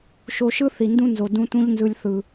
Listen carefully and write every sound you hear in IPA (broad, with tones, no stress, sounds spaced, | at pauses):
ʃ o˧ ʃ ɯ˦ θ i˨ n d ũ˦ n z o˨ d ũ˧ t ũ˧ ʎ n z ɯ˨ lʲ θ ɯ˨